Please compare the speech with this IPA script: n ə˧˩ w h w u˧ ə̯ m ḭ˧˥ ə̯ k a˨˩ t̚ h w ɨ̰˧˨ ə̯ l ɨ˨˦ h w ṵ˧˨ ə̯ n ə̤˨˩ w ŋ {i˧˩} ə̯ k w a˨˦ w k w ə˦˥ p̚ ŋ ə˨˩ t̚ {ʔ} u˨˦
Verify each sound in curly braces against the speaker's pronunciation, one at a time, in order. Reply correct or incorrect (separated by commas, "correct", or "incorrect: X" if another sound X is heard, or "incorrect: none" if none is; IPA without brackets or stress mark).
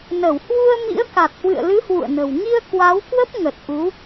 incorrect: i˧, correct